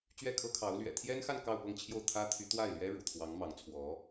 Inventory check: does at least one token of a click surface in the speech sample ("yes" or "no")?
no